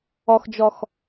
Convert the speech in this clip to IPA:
ɒxd͡ʒɒx

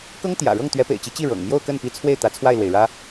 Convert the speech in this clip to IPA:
kɤ˥ŋt̪jä̰˨˩ɻɤ˥˩ŋ t̪ɥɛ˧˥pḛ˨˩ɪ̯t͡ɕi˧˥t͡ɕi˥˩ ɻɤ̰˨˩ŋ mjo˥˧ʊ̯kə˥˩npi˧˥t͡sʰwe˥˩ɪ̯ t̪ä˧˥t͡sʰwa˥˩ɪ̯lwe˩ɪ̯ɻä˥

